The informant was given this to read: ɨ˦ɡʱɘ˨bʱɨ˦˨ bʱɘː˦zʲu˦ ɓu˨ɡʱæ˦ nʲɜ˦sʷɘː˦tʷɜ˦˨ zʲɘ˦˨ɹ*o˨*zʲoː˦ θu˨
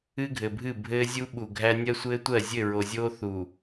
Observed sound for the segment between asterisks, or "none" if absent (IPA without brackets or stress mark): o˨